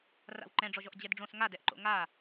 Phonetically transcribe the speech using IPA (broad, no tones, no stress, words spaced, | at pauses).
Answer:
ra̰wǃɛ̃ɖ͡ʐɔʒɔʔ d͡ʑɛdɖ͡ʐõs ŋadɛʔǃo̰ ŋa